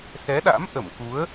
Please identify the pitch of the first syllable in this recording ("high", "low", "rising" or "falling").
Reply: rising